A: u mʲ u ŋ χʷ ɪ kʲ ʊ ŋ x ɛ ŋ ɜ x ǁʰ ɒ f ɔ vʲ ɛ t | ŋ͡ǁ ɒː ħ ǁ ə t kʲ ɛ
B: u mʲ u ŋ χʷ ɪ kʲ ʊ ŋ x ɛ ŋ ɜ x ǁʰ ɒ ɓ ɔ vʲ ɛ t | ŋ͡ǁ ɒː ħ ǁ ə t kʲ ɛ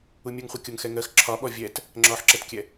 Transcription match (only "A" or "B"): B